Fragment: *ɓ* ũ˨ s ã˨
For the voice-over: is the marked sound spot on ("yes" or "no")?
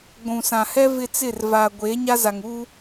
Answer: no